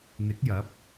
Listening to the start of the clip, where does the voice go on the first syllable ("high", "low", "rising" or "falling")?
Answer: rising